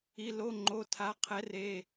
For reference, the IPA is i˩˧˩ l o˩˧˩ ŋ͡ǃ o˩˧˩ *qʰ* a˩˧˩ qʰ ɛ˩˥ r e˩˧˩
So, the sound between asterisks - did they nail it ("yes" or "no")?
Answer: no